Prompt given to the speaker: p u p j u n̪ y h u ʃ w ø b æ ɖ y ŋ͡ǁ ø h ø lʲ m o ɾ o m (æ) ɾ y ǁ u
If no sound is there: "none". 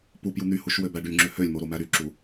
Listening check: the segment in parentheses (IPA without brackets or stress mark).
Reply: æ